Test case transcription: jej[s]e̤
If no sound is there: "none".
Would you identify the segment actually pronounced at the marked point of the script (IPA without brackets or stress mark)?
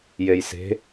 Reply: s